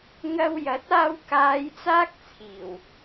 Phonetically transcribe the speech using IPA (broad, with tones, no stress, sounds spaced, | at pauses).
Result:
ŋ ɐ˧ w j ɐ˨˥ t̚ aː˧ w k aː˨˧ j t͡s aː˥ k̚ t͡sʰ iː˨˩ w